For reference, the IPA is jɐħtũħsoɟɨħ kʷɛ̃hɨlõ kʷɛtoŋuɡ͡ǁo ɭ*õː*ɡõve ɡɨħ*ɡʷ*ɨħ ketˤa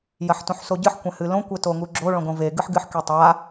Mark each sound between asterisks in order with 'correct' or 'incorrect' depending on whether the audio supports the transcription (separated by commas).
incorrect, incorrect